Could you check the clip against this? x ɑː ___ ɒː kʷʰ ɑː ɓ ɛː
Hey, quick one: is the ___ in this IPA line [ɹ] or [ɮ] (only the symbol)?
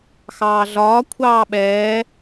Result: ɮ